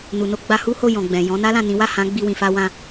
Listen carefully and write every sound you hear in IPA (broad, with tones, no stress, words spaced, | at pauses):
nu˨no˧ ɡ͡ba˧hu˦ ho˦˨jɔ̃˨ ɡ͡bɛ̃˨ jɔ̃˨˦na˦lã˦˨nĩ˨˦ wa˦˨hã˨˦ ɡ͡bi˧wĩ˨fa˧wã˧